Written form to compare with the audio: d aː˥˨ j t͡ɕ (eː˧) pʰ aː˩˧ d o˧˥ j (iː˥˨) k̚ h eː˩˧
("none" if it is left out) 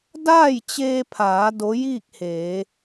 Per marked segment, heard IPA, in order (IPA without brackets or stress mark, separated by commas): eː˧, iː˥˨